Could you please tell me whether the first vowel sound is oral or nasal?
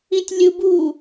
nasal